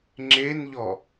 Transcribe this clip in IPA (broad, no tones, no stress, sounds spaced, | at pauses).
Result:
ŋ͡ǁ e n ʎ ɔ